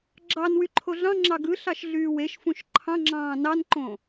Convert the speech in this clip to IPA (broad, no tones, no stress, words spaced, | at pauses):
ɡ͡ǁɑnwy ǃʰoɮɑ̃ŋ͡ǁɑ ɡɯ ɬɑʃɮyːweʃfũʃ ǃʰɑ̃ŋ͡ǁɑ̃ː nɑnǃõ